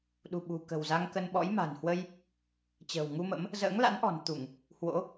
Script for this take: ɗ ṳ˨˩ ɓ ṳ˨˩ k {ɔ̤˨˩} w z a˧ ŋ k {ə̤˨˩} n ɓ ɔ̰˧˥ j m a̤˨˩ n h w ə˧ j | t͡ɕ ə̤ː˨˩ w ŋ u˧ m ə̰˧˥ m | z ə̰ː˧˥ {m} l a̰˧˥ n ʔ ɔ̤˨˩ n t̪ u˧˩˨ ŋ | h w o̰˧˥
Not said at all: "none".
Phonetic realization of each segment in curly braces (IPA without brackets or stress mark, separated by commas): ə̤˨˩, ə˧, ŋ